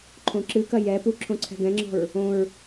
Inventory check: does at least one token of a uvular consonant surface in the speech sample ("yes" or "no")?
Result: no